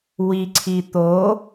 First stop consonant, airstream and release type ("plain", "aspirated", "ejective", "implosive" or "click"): click